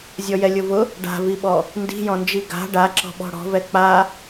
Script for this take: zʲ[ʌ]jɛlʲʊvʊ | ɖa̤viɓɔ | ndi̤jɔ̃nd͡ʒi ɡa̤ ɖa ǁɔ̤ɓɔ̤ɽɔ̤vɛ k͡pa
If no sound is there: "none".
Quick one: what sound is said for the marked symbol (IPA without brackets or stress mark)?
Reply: ɔ